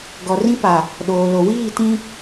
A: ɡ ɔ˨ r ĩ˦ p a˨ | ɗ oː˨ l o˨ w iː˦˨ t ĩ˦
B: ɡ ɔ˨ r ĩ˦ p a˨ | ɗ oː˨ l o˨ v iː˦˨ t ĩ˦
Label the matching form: A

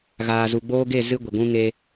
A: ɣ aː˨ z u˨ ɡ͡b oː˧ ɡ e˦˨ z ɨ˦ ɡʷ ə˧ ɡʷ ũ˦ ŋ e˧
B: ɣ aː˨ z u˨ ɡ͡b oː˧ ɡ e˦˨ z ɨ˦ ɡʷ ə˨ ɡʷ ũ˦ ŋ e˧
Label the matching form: B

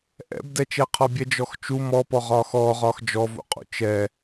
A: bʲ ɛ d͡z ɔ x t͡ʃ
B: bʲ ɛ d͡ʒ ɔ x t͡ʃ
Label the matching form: B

